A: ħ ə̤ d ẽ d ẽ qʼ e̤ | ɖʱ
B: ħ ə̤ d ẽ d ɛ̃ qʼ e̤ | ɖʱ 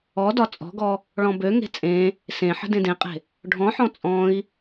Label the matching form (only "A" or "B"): A